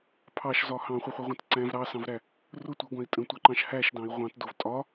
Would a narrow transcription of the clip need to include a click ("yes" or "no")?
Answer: yes